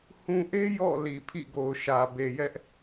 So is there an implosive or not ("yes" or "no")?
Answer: no